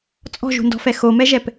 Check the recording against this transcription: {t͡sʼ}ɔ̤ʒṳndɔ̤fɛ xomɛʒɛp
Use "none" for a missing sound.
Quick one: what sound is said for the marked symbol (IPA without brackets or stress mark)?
t͡sʼ